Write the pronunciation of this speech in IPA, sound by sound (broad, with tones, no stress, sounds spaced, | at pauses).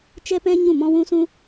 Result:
t͡ʃ ɛ˦ p ɛ̃˦ ɲ ũ˦˨ m ɔ̃˦ w ũ˦ s ũ˦